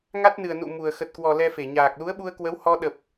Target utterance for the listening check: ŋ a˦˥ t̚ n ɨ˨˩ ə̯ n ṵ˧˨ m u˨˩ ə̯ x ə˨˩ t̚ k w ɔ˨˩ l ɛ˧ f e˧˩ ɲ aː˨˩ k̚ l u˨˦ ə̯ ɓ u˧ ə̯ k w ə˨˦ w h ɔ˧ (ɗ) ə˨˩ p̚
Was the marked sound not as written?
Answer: no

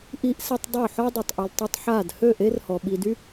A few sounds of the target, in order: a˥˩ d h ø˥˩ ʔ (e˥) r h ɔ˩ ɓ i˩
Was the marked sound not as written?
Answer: no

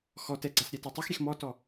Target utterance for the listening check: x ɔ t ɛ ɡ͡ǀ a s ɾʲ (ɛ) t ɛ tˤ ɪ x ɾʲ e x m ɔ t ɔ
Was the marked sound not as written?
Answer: no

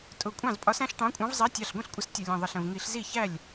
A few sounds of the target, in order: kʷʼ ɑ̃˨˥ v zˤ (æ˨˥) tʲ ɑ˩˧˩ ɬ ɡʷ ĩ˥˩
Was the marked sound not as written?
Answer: no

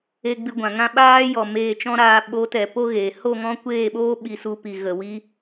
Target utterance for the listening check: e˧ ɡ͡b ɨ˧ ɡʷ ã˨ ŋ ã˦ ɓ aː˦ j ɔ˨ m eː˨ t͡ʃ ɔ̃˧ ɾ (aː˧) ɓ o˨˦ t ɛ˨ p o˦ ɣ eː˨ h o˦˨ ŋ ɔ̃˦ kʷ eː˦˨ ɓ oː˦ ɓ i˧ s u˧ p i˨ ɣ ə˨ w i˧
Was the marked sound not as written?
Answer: no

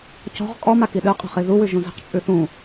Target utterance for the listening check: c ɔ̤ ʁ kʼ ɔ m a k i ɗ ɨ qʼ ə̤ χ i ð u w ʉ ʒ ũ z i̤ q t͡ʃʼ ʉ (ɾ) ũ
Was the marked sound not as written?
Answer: yes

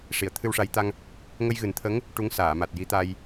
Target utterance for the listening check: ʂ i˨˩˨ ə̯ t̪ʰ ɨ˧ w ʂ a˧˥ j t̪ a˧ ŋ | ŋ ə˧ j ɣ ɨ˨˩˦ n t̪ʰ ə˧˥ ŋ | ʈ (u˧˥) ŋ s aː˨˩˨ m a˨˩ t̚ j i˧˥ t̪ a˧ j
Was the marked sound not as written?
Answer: no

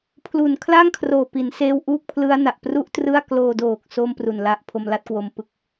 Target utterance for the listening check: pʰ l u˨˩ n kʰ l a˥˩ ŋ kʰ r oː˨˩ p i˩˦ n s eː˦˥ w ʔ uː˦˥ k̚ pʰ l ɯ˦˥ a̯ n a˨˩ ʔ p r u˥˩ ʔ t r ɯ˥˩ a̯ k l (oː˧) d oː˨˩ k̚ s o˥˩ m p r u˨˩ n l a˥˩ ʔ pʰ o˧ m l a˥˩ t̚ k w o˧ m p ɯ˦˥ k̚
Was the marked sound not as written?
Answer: no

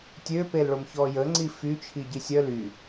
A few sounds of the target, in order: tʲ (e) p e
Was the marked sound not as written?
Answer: yes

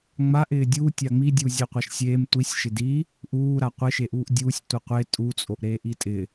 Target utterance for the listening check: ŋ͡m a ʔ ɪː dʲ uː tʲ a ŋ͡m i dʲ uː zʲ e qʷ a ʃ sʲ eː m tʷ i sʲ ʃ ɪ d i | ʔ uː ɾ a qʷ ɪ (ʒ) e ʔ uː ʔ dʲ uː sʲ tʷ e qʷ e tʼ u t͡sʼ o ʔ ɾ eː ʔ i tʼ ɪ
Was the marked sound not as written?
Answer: yes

